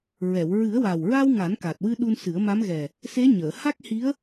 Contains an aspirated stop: no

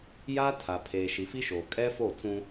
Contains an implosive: no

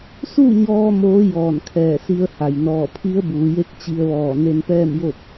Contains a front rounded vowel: no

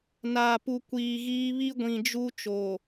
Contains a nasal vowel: yes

